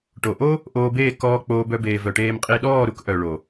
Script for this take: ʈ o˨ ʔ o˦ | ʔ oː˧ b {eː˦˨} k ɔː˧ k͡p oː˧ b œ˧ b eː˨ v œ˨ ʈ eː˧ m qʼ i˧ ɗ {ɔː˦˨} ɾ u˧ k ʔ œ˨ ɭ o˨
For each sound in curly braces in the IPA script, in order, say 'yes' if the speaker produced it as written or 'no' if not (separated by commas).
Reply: yes, yes